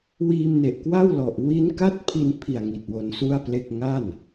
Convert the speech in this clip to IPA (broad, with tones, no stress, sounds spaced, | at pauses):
w iː˧ m n e˨˩ ʔ k w a˥˩ w l ɔ˨˩ ʔ w i˦˥ n k a˥˩ t̚ pʰ i˧ n pʰ i˨˩ a̯ ŋ i˨˩ t̚ w o˧ n s u˥˩ a̯ p l e˥˩ k̚ ŋ a˥˩ n